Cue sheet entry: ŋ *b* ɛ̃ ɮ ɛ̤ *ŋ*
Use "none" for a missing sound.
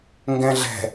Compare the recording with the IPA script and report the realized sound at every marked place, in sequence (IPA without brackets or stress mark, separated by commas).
ɡ, none